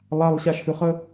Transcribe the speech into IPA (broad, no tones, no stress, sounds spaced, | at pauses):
lˠ a lˠ ɕ a ʃ h ʉ χ ə